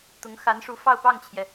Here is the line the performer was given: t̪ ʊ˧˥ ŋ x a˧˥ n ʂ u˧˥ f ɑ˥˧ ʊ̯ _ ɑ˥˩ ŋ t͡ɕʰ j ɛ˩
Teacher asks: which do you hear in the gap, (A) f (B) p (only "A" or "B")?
B